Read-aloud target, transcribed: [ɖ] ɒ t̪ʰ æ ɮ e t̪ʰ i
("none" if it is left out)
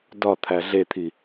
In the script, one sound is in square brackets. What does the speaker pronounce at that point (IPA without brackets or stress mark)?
d